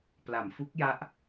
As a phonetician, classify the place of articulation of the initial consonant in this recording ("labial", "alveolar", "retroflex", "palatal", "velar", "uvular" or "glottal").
labial